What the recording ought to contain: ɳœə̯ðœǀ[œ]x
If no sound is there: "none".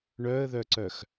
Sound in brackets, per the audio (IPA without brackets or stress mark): œ